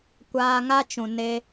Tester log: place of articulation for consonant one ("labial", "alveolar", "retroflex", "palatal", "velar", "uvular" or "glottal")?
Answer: velar